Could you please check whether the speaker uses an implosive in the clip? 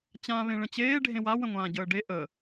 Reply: no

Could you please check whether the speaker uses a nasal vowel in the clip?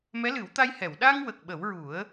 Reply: no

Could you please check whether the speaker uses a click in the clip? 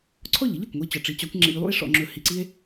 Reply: yes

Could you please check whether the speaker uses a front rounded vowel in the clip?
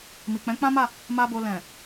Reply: no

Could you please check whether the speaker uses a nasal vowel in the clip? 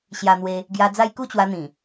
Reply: yes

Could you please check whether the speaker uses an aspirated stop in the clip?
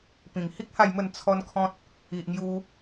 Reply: yes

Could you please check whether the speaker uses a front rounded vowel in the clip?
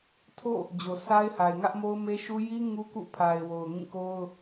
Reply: no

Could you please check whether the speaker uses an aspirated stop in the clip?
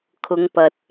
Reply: yes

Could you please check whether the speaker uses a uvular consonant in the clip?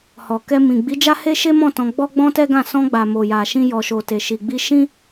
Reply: no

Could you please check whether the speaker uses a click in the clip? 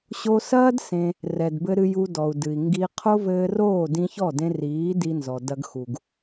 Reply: no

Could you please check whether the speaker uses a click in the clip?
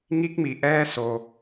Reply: no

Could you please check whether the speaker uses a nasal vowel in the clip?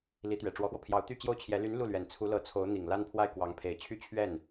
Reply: no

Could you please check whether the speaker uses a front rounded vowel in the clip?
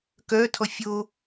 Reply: yes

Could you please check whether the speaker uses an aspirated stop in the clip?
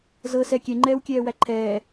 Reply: yes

